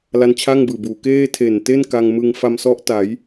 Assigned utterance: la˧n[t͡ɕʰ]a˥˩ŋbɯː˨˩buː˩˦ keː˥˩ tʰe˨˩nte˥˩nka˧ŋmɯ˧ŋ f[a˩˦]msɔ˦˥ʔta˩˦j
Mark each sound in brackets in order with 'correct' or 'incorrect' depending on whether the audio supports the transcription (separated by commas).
correct, incorrect